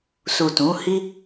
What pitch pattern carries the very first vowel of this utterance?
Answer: low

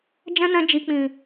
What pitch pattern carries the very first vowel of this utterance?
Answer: high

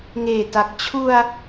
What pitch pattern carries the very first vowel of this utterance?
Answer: low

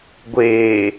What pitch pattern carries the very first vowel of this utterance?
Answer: low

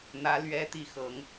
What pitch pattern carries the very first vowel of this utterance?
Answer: rising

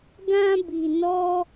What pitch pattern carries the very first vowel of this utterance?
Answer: high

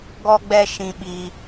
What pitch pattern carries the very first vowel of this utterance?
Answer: high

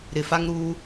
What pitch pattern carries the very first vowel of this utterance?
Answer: low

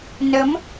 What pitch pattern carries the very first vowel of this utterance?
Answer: rising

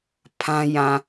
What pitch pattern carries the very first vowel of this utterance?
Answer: high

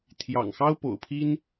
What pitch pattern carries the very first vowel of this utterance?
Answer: low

